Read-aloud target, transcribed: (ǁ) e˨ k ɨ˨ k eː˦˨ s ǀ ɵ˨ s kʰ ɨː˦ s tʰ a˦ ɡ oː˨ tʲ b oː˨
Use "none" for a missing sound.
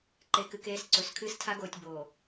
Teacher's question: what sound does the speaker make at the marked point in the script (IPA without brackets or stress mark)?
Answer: ǃ